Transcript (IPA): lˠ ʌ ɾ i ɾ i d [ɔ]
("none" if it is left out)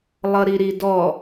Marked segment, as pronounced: ɔ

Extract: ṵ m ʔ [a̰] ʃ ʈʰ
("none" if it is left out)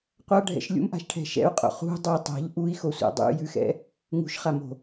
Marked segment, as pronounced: a̤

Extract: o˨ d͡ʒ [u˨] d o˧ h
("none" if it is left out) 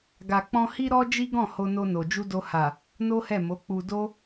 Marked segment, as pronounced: u˧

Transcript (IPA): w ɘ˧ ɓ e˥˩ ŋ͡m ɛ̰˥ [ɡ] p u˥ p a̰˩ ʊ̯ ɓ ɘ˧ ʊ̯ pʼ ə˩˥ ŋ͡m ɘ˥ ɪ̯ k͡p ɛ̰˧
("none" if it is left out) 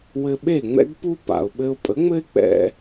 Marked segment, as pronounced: ɡ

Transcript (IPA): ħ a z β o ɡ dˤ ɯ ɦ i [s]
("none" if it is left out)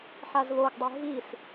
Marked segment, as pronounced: s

